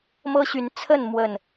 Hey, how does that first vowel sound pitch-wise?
high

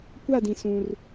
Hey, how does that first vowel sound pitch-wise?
falling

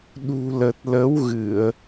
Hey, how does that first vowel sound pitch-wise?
low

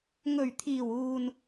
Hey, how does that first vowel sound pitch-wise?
low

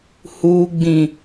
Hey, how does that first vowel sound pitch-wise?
low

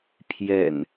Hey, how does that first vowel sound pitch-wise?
low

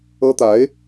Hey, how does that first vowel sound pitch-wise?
high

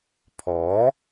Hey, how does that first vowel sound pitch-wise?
rising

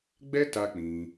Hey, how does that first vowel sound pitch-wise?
high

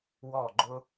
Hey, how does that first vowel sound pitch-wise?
falling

